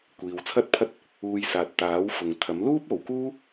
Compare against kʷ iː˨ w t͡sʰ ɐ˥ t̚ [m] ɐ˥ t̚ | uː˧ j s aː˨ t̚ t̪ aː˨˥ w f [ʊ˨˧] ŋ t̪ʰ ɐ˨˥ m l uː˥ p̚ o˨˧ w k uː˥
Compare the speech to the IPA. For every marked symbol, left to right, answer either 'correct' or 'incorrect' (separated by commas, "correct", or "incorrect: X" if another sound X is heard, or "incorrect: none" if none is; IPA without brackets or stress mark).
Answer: incorrect: pʰ, incorrect: ʊ˨